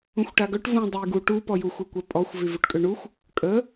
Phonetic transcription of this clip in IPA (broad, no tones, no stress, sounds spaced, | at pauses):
ũ xʷ ʈ a ɡ œ ʈ v ũ dˤ e j ɡ u ʈ u p ɔ j u xʷ e kʷ œ pʼ ɔ xʷ v y v u ʈ kʼ ø ɳ u xʷ | kʼ ə